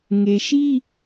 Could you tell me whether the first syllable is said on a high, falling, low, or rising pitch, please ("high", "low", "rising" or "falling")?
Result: low